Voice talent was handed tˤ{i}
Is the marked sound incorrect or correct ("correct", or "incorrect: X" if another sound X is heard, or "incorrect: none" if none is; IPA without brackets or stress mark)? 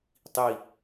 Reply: correct